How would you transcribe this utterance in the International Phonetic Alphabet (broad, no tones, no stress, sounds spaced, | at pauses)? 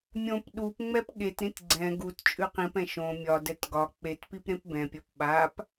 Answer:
mʲ õ p ɗ u p ŋ͡m ɛ p ɠ e t ɾ ĩ t ɡ͡ǀ ɛ̃ ɡ u t t͡ʃʼ ʉ q ĩ p ɛ̃ ʃ õ mʲ ɒ d ɛ t ɡ ɒ k͡p e t p i p ɾ ẽ p b ɛ̃ pʲ ɒ p ɓ a p